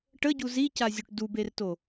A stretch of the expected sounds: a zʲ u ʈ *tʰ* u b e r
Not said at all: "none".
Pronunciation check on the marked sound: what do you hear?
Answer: d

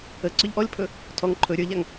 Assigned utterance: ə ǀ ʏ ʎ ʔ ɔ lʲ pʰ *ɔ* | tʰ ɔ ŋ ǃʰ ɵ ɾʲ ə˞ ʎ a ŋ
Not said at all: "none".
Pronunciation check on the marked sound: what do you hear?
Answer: ɵ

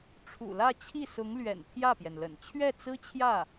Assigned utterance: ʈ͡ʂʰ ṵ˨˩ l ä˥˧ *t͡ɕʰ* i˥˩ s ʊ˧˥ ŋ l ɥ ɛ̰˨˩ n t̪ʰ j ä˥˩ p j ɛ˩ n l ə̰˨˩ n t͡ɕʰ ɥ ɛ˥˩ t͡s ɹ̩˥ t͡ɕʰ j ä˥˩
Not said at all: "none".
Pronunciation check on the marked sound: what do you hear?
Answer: t͡ɕʰ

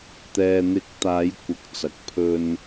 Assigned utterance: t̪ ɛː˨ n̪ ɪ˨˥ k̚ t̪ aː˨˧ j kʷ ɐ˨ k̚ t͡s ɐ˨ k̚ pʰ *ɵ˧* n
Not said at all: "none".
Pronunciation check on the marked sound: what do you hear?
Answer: ɵ˧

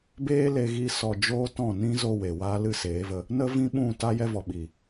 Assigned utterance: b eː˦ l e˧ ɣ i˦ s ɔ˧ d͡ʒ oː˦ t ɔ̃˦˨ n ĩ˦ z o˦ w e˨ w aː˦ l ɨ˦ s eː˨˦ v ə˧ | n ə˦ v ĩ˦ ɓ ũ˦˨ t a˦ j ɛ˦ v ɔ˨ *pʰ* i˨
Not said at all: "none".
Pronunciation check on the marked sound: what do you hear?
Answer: ɓ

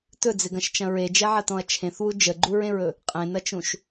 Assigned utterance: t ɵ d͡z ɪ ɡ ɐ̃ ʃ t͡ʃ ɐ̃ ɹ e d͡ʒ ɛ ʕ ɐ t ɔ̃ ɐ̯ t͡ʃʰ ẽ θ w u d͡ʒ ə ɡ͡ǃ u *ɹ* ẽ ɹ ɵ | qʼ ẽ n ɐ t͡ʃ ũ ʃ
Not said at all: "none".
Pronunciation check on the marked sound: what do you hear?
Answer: ɹ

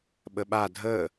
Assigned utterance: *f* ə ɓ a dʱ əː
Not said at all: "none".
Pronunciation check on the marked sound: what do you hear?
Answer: ɓ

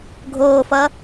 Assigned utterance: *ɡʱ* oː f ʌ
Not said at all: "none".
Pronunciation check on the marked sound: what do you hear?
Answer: ɡʱ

